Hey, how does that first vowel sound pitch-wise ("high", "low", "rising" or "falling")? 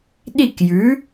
falling